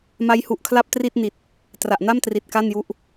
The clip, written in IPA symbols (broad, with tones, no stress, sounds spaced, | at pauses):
m a˦˥ j h u˨˩ ʔ kʰ l a˥˩ p̚ t r i˥˩ t̚ n i˨˩ t̚ | t r a˨˩ ʔ n a˥˩ m t r i˨˩ t̚ k a˥˩ n j u˦˥ ʔ